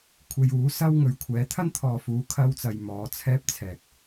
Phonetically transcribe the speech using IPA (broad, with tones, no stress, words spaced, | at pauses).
kʷʰe˧juː˨˥sɐ˥w ŋɵ˨˧ɥkʷʰɛː˨˥ t̪ʰɐ˥nt̪ʰɔː˨fuː˨˧ kʰɐ˧w t͡sɐ˧jmɔː˨˧t͡sʰɛː˥p̚t͡sʰɛː˨k̚